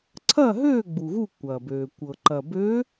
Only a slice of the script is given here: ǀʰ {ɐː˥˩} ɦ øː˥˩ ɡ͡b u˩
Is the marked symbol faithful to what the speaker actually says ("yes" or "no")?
yes